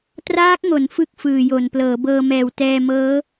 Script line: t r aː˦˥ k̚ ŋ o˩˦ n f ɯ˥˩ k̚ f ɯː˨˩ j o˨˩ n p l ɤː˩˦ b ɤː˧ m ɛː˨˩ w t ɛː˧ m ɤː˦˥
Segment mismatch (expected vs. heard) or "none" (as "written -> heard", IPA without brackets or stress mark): none